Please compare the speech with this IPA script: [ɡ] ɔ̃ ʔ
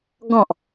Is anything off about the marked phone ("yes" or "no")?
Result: no